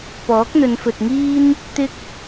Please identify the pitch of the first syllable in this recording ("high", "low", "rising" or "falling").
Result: rising